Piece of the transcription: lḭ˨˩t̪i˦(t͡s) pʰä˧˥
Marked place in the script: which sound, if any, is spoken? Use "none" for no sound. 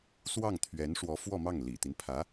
n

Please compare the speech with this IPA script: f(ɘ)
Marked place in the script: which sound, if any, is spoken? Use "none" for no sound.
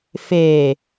e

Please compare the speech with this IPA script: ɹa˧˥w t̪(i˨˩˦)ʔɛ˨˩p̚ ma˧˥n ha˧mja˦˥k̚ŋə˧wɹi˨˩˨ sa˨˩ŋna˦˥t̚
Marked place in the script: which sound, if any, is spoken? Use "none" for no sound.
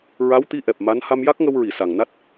i˧˥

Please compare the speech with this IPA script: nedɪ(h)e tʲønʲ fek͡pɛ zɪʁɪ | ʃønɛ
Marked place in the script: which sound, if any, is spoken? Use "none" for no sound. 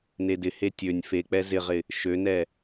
h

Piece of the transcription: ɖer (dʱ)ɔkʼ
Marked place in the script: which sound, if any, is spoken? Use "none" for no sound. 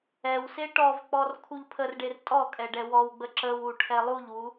tʼ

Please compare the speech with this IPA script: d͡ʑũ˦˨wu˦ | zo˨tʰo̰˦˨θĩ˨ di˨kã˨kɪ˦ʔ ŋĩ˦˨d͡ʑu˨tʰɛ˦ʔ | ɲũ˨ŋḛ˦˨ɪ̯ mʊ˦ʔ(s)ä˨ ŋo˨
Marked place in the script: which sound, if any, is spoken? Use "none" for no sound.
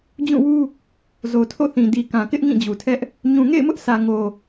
s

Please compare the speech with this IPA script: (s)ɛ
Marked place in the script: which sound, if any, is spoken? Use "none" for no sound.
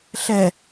ɬ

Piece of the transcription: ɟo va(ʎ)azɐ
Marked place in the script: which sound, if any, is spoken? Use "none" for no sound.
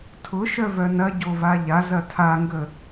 ʎ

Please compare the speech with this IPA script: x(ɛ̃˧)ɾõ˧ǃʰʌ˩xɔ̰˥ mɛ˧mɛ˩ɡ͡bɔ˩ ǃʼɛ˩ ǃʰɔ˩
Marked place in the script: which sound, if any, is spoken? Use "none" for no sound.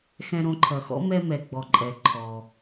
ɛ̃˧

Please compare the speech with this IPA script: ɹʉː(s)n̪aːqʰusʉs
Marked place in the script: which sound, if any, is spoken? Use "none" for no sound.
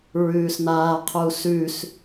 s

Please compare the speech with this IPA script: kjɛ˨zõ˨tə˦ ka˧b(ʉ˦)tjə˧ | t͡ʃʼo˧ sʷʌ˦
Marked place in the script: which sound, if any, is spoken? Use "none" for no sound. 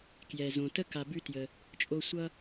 ʉ˦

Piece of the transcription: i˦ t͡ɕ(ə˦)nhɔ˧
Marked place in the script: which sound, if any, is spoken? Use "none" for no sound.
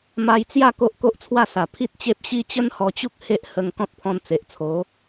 ə˦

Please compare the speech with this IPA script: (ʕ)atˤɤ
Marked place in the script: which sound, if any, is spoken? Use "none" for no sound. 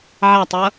ʕ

